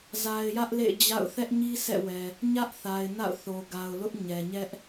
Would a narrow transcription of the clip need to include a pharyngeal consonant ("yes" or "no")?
no